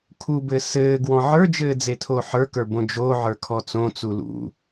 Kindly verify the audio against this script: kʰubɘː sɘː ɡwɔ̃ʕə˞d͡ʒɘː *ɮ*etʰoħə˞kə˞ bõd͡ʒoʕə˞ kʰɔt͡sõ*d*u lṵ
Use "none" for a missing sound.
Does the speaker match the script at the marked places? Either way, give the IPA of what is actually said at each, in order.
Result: d͡z, t͡s

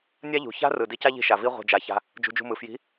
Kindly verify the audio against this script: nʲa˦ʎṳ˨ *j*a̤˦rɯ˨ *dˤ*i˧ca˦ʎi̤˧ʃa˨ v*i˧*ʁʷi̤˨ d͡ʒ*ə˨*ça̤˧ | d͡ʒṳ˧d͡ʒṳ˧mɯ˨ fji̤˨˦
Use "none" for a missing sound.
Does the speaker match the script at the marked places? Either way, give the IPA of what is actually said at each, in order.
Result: ç, d, i˧, a˨

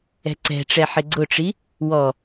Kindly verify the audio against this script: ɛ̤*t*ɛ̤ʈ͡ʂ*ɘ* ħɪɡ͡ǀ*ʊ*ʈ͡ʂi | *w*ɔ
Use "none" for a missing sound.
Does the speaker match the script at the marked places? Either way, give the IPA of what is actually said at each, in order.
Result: ǀ, ɛ, ʊ, w

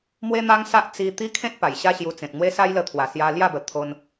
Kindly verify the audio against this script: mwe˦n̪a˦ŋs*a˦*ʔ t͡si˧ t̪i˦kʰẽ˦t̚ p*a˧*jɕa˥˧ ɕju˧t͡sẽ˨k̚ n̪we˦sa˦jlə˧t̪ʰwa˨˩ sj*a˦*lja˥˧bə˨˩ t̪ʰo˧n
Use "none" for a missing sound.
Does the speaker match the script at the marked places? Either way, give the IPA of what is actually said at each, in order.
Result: a˦, a˨˩, a˧

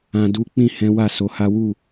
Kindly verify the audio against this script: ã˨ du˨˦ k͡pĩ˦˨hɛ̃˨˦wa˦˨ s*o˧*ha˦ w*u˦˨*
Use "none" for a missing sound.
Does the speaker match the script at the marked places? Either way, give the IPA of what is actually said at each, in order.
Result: o˨˦, u˦˨

